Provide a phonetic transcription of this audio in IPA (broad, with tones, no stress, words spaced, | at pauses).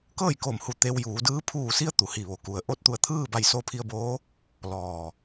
kɤː˥˨jko˧˩mhu˧˩ t̪e˧wjuː˩˧dɯː˧˥ pʰuː˧˩si˧ə̯ t̪u˩hi˧˩ʋo˩ku˩ə̯ ʔo˥˨t̚ t̪u˧˩ə̯t̪ʰɯː˥˨ba˧˩jso˧ pʰi˧ə̯boː˧˥ | lɔː˧˩